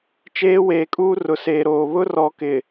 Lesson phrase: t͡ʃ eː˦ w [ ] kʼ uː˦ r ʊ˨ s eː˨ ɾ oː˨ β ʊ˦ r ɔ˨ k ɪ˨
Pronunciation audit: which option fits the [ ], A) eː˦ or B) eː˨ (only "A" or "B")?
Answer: B